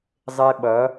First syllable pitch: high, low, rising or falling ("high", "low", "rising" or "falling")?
high